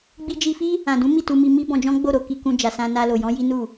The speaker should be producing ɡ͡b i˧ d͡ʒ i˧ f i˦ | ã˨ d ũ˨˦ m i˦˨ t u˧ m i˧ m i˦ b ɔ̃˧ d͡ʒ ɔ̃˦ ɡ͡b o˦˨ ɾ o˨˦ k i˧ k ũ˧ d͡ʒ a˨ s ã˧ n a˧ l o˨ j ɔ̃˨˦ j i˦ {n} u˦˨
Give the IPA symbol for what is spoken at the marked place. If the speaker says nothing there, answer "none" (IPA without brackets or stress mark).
n